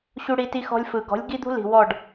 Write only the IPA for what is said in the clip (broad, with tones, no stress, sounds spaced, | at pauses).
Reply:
ɕ u˦ ɽ i˦ t i˦ x ɔ̤˦ lʲ f ɯ˨ ɡ ɔ̤˨˦ lʲ ɡ i˦ d̪ ṳ˦ l i̤˨ w ɔ˦˨ ɖ